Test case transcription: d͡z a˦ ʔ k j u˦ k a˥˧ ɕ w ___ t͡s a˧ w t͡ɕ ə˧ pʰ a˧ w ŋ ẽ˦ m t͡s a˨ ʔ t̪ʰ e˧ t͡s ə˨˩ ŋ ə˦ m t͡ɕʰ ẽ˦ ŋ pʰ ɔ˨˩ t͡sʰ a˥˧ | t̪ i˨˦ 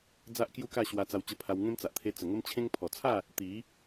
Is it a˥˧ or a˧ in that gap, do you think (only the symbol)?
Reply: a˧